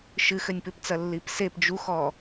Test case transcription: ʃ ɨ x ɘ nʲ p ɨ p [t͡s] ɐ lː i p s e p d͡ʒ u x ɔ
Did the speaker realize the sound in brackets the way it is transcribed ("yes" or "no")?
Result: yes